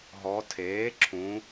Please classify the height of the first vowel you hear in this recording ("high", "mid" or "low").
mid